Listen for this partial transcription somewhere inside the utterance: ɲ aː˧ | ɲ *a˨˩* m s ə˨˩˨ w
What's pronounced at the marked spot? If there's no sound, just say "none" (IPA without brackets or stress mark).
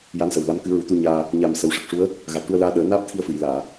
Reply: a˨˩